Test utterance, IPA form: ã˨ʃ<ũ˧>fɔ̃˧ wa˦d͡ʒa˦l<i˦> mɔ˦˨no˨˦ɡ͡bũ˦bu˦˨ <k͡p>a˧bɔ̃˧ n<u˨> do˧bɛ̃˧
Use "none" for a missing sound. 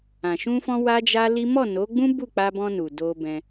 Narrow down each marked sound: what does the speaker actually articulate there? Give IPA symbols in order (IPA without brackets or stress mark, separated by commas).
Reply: ũ˧, i˦, k͡p, u˨